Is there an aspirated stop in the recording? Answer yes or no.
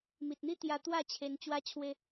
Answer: yes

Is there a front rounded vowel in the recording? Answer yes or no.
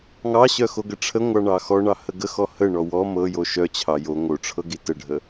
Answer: yes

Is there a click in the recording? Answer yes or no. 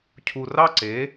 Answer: yes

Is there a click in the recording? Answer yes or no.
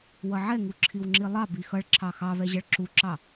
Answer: yes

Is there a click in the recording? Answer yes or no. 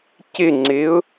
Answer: yes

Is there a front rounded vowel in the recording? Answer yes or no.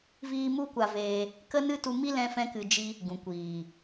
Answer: no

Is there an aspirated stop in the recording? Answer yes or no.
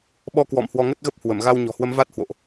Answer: no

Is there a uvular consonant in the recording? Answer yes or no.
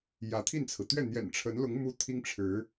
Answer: no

